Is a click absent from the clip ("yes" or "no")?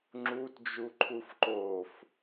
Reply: no